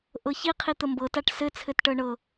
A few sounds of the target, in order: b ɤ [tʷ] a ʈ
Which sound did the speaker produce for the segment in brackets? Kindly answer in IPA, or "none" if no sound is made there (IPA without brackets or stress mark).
t